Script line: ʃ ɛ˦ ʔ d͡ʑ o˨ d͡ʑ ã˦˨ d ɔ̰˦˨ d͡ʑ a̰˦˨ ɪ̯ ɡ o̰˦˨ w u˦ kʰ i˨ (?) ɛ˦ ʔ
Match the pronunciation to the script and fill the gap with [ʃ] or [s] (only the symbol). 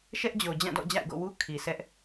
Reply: s